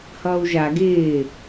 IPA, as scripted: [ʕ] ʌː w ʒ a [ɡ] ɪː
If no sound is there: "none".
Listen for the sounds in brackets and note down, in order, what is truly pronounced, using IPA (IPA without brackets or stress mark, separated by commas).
h, ɡ